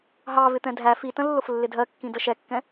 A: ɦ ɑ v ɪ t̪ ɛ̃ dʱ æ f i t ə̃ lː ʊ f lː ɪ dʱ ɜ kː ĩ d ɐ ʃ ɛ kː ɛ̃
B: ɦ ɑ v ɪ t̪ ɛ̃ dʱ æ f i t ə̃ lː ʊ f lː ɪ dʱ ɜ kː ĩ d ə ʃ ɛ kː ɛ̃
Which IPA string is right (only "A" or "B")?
B